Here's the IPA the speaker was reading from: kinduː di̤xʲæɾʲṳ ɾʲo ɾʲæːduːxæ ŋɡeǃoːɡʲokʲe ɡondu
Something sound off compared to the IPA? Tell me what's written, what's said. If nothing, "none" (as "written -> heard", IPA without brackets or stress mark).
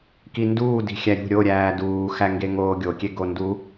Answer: ǃ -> ŋ